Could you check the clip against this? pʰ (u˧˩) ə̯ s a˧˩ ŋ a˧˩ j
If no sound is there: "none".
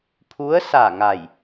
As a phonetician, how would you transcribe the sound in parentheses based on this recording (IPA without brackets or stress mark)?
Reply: u˧˥